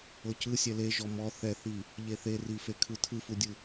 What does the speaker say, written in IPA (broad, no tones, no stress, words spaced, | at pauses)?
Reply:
ɤcɯ sʲɛleʒɔ mɔ θɛθi | ʎeθerife kʰɯtʰɯfudʲɯ